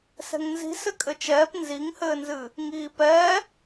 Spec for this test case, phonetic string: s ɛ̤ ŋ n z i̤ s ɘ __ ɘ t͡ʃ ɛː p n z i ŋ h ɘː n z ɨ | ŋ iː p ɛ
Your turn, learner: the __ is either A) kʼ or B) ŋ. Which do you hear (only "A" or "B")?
A